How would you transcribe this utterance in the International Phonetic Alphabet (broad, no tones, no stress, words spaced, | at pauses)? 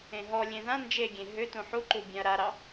ẽɦɔlʲẽ ðã nd͡ʒeɡʲẽ ɦʏ tũħuǃu bʲãɐ̯ɾaɾɑ